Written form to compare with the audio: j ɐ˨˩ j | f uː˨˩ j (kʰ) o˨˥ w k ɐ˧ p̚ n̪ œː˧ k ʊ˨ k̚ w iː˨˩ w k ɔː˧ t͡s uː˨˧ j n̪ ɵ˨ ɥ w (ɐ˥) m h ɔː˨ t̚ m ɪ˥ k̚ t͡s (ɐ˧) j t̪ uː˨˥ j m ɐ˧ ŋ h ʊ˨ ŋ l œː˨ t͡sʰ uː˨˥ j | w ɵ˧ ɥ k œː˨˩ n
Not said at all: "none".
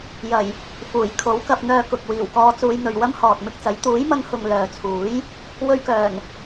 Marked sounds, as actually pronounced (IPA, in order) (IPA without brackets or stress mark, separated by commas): kʰ, ɐ˥, ɐ˨˥